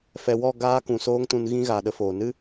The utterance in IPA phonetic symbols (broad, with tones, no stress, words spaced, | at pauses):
fɛ˨wɔ˦˨ ɡaː˧ kũ˨soː˦ŋtũ˧n ɣĩ˦ɣaː˨ɗə˧foː˨ nɨ˦